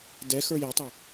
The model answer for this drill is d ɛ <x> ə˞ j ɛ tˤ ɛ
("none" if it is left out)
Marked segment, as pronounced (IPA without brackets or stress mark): x